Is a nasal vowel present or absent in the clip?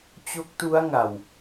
absent